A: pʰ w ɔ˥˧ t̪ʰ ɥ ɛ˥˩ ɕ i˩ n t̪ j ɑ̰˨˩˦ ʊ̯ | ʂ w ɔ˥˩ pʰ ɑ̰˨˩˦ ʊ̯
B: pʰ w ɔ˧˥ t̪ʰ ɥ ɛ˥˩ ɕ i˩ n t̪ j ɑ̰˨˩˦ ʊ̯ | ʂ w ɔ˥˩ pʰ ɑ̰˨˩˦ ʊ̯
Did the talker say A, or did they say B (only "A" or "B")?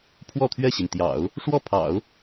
A